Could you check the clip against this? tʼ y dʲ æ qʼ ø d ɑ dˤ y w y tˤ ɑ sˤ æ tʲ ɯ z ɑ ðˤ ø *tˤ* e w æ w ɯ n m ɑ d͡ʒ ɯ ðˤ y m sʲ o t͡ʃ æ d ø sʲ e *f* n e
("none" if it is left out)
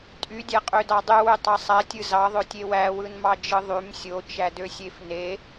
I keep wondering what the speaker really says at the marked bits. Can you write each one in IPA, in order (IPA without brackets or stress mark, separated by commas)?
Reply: tʲ, f